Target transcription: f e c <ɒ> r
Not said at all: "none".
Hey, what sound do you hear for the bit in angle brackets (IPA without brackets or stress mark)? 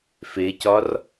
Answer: ɒ